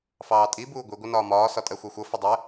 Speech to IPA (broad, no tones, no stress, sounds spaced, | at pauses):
f ɑː tʼ i b uː ɡʷ i ɡʷ ʌ n ɒː m ɒː s ɒ tʼ ɜ xʷ æ xʷ ʌ f ə dˤ ɛ